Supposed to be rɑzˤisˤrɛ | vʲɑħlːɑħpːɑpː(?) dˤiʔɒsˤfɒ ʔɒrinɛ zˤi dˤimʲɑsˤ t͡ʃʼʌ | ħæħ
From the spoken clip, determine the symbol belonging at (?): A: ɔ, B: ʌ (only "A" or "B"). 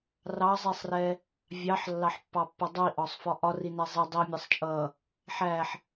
B